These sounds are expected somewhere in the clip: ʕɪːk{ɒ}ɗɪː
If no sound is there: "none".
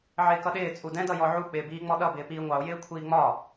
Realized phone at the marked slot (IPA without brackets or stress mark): ʌ